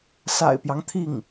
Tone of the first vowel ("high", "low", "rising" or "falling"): low